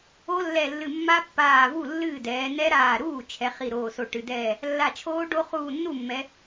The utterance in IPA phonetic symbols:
o˦˥ lː ɛ˧˩ lː ɨ˧˩ mː a˦˥ pː aː˧˩ v u˥˩ lː ɨː˥˩ d ɛː˩˧ n ɛ˦˥ ɾ aː˧˩ ɾ uː˥˩ t͡ʃʰ ɛ˩˧ χ i˧˩ ɾ oː˧˩ s o˧˩ ʈ ɨ˩˧ d ɛː˥˩ | lː a˧˩ t͡ʃʰ oː˦˥ ɖ o˦˥ χ uː˧˩ nː u˥˩ mː ɛ˩˧

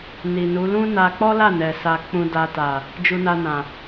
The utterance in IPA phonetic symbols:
n i˨ n u˨˦ l ũ˦ n a˧ k͡p ɔ˦ l a˦˨ n ɛ˨ s a˨ k͡p ũ˨ d a˨ t a˨ | d͡ʒ u˧ n a˧ n ã˨

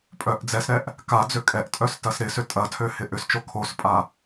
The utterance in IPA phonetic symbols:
pʼ œ ʔ d͡z ɛ s ɾ ɛ ʔ | k a d͡z ø kʼ ɛ ʔ tʼ œ s t ɐ s ɾ ɪ s ʏ tʼ ɐ tʰ ø h ɪ ʔ ʏ s t͡ʃ o kʰ o s pʼ a

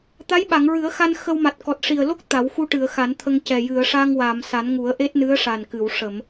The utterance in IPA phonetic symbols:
t̪ a˧˥ j ɓ a˨˩˨ ŋ ɹ ɨ˨˩˦ ə̯ x a˧ n x ə˧ w m a˨˩ t̚ k ɔ˨˩ t̚ ʂ i˨˩ ə̯ l o˦˥ k̚ t̪ a˨˩˦ w x u˧ ʈ ɨ˨˩˨ ə̯ x a˨˩˦ n t̪ʰ ə˧ ŋ c ɛ˨˩ j ɨ˨˩˨ ə̯ ʂ a˧ ŋ w aː˨˩˨ m s a˨˩˦ n ŋ u˨˩˦ ə̯ ʔ e˦˥ t̚ n ɨ˧˥ ə̯ ʂ a˨˩ n k ɨ˨˩˨ w ʂ ə˨˩˨ m

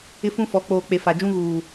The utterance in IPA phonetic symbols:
ɪ˦ f ũ˦ f ɔ˨˦ k͡p oː˨ k͡p e˨ f a˨ d͡ʒ ũ˦ ɣ uː˨

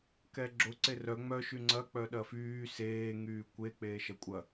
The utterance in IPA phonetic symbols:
k ɛ ɡ͡ǁ ʊ ǀ e r œ ŋ͡m œ ʃ y ŋ͡ǀ ɐ k͡p œ ɗ ɐ f yː s eː ŋ yː kʷ e k͡p eː ʃ ɐ kʷʼ ɐ

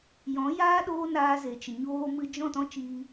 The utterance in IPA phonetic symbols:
j ɔ̃˨˦ j aː˦ ɗ oː˦ n aː˧ z e˨ t͡ʃ ə˨ ɲ oː˧ m ɨ˧ d͡ʒ ɔ̃˦˨ t ɔ̃˦ t͡ʃ iː˧

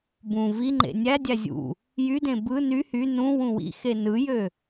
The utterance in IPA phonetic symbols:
b ũ v i ŋ͡ǃ ḛ nʲ æ dʲ æ zʲ ṵ | j y d ẽ b ɯ n y h y n ũ w ũ w ḭ x e n ɯ j ø

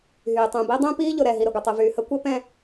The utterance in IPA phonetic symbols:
ɦ yː˨ tˤ ũ˨ b i˦ dˤ ũ˦ p iː˦ ʎ ʊ˨ ɾ ɛ˨ ɦ i˨ ɾ ɘ˨ ɡʷ ɘ˨ tˤ ɨ˨ v yː˨ h ə˦ kʷ ɘ˦ p ɛ̃˦

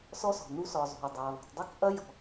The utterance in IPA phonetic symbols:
s ɔ˦ s ɔ̤˨ n u˦ s ɔ˨ zˤ o̤˨ i̯ dˤ a˨ i̯ ðˤ o̤˨ tˤ dˤ i˦ k ʔ ɐ˦ j ɔ̤˨

